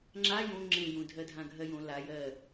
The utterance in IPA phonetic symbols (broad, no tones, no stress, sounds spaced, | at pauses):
ŋ͡ǁ a j õ ŋ͡ǁ ẽ j ũ dʱ ɜ dʱ ã ɡʱ ɜ j õ l a j ɜ